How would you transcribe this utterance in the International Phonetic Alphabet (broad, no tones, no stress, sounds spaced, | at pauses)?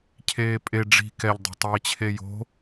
cʰ eː pʼ e ɖ͡ʐ i̤ k ɛ ʎ dˤ o̤ tˤ iː t͡ɕʰ e j o̤